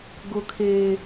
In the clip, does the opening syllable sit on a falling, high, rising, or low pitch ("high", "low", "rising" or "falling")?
high